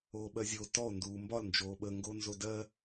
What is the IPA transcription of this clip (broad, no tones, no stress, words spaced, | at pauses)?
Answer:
oːɓɜzʲo tɔo̯ nduːmbɒl nd͡ʒoːɓə ŋɡonzodɜ